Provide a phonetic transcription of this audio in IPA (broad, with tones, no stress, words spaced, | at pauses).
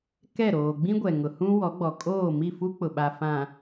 kɛ˦˨ɾoː˨ ɡ͡bĩ˦ɡʷɛ˨ŋʊ˨hũ˦ wɔ˨˦ɡ͡bɔ˨ kʼoː˦˨mi˦˨fu˦ k͡pʊ˨ɓa˨fã˨